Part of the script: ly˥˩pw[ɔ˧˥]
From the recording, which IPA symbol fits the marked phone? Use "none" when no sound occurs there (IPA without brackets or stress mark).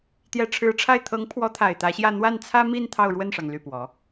ɔ˧˥